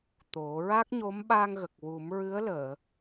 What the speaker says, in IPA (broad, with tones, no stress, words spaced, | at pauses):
t̪o˨˩˦ ɹa˦˥k̚ɲo˧˥mɓa˧ŋ ɣə˨˩k̚wu˨˩˦m ɹɨ˧˥ə̯ləː˨˩˨